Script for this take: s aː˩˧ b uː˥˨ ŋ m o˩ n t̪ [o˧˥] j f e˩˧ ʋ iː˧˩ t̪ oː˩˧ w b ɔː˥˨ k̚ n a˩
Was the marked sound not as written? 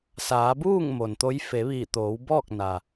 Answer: no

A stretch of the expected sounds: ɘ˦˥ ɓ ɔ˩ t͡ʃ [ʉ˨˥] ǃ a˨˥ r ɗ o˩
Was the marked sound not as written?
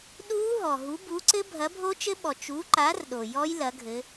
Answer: yes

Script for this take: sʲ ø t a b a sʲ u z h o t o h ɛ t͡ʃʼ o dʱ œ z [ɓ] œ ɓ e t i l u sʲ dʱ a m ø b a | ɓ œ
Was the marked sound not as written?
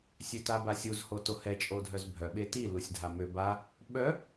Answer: yes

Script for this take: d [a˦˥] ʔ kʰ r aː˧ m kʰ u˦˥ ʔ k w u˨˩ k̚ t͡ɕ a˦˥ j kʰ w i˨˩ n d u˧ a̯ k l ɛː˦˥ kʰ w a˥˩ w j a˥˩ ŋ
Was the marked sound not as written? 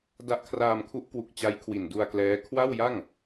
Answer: no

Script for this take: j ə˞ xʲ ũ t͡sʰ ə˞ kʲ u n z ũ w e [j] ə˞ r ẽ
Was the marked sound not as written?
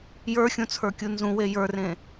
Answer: no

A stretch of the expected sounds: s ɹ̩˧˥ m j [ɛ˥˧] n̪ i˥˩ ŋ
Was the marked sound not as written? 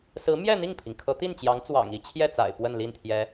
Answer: no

